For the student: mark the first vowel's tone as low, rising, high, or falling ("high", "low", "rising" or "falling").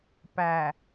low